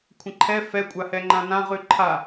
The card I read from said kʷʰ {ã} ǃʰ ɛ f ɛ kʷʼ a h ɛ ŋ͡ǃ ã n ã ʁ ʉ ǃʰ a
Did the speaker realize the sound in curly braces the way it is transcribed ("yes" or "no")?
no